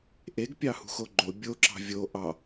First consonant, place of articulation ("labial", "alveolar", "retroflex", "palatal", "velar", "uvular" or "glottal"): glottal